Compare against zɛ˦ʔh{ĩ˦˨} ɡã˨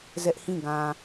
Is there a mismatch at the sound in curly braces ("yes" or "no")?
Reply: no